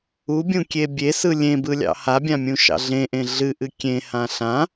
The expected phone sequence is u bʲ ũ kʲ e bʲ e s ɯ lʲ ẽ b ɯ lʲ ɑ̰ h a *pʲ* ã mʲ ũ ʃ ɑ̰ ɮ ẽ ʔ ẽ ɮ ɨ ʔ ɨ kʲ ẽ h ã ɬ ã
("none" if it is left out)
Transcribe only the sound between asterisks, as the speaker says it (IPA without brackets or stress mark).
bʲ